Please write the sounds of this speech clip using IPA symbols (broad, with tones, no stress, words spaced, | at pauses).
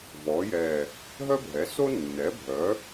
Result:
vɔ˩˧jɛ˨˩ | ɦœ˥bʱɛ˩˥so˥ nːɛ˩˥bʱœ˩˥